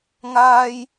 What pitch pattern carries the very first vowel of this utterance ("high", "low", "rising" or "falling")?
high